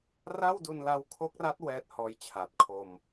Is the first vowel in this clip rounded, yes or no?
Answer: no